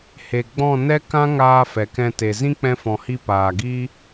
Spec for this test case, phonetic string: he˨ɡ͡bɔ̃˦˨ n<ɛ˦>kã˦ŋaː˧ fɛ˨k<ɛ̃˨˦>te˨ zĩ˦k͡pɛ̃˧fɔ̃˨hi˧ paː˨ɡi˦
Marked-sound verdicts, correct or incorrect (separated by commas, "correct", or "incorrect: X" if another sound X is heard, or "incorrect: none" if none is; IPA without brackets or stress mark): correct, incorrect: ɛ̃˧